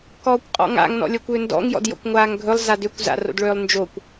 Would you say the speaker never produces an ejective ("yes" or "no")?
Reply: no